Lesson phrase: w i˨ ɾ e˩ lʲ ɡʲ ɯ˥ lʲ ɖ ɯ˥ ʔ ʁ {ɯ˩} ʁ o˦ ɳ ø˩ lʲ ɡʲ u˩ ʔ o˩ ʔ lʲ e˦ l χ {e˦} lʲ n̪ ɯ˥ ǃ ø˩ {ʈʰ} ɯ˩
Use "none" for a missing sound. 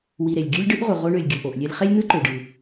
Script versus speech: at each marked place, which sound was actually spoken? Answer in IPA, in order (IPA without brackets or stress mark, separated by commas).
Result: u˩, e˥, ɖ